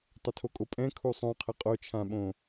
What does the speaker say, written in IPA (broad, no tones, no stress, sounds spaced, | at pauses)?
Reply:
tˤ ə tʰ o kʼ o pʼ ɛ̃ kʰ u sˤ õ qʰ ə qʼ o t͡ʃʰ ã ɓ õ